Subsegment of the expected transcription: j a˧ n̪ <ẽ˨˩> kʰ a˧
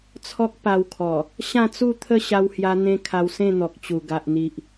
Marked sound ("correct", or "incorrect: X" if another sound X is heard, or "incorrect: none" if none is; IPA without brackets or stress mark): incorrect: ẽ˧